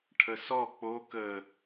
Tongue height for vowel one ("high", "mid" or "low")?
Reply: mid